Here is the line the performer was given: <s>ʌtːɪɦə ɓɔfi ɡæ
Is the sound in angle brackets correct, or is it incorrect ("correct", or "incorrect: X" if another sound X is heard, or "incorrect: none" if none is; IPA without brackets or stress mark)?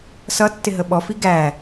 correct